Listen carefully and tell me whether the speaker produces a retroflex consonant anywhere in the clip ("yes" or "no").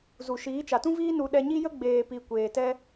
no